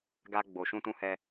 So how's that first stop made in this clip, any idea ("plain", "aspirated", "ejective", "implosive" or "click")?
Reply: plain